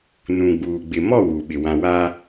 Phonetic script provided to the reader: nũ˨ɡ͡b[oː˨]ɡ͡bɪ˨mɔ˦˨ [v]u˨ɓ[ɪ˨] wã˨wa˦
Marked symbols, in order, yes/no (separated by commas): no, no, yes